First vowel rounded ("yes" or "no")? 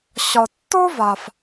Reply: yes